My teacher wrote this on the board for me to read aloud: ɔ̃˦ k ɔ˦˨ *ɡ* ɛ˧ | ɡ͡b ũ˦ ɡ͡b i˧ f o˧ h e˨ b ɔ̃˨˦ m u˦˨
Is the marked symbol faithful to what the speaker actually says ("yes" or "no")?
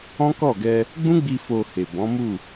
yes